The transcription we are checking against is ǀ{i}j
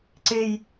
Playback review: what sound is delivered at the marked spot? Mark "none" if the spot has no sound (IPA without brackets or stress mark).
e